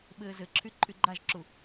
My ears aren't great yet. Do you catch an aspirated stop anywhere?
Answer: yes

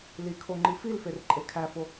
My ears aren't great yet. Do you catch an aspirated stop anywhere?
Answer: yes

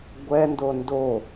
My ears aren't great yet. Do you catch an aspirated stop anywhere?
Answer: no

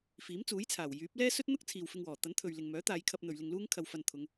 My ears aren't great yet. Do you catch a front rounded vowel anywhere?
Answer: yes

